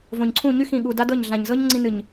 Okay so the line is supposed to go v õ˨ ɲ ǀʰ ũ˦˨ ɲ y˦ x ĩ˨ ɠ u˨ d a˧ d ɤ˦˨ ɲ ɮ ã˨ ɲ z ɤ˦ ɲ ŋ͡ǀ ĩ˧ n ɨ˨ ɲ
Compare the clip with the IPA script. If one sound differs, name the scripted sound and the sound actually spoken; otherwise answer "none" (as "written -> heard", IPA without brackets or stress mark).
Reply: none